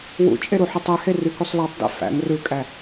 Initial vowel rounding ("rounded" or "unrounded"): rounded